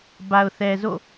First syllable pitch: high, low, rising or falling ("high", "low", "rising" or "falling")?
low